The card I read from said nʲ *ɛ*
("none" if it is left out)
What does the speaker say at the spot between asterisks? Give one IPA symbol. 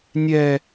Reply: ɛ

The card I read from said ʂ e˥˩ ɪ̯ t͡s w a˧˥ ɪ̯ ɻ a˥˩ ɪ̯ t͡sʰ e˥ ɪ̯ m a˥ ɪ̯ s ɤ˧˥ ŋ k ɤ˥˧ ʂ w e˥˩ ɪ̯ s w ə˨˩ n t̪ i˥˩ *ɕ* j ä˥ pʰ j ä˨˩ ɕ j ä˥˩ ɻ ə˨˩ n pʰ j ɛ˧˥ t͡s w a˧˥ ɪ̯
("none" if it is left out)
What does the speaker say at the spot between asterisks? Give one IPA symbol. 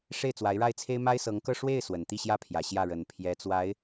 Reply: ɕ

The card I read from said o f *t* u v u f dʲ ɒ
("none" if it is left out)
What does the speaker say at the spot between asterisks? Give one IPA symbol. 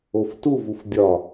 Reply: t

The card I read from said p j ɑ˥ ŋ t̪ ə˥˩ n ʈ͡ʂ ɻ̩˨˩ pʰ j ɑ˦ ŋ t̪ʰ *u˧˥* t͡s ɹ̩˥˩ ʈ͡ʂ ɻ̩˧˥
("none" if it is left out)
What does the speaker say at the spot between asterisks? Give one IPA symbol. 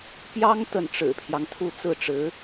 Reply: u˥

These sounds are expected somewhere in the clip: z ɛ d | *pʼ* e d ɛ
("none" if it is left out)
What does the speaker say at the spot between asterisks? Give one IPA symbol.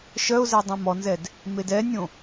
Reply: m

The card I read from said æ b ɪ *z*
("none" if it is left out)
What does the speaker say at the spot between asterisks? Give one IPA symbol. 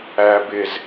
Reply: z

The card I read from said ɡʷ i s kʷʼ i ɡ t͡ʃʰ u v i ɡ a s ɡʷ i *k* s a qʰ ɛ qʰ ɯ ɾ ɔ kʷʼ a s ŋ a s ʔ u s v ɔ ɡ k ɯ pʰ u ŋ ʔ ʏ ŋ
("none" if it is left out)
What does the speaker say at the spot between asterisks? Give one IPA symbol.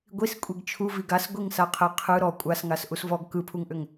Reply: ŋ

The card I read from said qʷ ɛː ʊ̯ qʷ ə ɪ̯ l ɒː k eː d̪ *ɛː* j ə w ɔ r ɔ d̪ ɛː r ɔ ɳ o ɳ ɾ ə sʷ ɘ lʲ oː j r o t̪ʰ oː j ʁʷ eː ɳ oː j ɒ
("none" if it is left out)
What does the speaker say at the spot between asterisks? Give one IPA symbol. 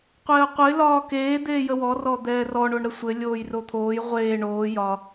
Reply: eː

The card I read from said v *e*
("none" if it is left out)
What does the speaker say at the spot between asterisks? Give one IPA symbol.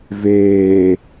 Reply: eː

